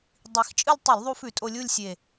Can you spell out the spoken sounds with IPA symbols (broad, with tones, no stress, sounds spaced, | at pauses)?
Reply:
dˤ i˨˩ x t͡ʃʼ ɨ˥˧ lʲ tˤ i˧˩˧ l ðˤ u˧ f ʉ˧˩˧ tʼ o˧ lʲ u˥˧ lʲ sʲ e˨˩